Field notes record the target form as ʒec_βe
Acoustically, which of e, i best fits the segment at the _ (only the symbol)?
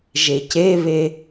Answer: e